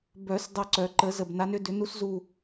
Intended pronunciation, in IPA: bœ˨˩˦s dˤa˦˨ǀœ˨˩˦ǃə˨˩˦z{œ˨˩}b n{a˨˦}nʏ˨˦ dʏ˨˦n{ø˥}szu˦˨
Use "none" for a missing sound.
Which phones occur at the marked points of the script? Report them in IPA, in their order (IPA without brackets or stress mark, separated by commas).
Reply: ə˨˩, a˨˦, u˥